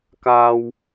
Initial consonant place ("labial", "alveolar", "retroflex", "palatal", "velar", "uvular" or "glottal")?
velar